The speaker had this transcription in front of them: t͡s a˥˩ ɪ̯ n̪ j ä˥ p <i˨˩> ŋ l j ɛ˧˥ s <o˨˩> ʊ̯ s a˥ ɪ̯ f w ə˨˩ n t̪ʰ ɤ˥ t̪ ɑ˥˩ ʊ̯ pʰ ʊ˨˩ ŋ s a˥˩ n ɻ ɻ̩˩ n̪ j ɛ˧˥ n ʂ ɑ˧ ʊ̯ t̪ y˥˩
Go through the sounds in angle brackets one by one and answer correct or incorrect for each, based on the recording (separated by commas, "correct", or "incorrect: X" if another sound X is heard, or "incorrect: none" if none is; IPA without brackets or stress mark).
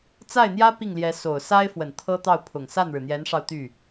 incorrect: i˥˩, correct